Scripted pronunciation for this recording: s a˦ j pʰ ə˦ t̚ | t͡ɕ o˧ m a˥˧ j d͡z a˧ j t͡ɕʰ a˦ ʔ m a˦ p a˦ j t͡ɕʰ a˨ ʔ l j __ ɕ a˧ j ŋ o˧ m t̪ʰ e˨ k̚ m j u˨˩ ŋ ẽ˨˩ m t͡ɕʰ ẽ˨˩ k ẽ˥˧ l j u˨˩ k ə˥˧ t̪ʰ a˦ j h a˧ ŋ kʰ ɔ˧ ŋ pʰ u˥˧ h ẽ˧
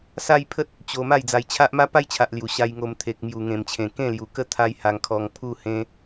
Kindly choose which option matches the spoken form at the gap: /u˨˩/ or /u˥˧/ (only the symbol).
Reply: u˨˩